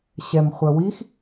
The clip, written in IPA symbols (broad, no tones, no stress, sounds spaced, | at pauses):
ɕ ɛ m χʷ œ w i x